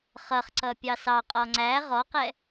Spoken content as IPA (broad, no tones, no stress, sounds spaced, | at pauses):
χ ʌ χ ǀ ʌ pʲ ɑ s ɑ qʼ ɔ ŋ͡ǀ æ ʁ ɔ q ɛ